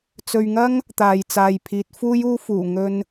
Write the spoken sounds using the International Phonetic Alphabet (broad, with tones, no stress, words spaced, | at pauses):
t͡sɵ˨ɥŋɐ˥ŋ | t̪aː˨jt͡saː˨jpʰiː˨˥t̚ fuː˥juː˥fuː˨˩ ŋɵ˧n